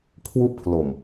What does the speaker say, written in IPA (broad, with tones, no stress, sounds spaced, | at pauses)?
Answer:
kʰ w u˦˥ ʔ pʰ l o˨˩ m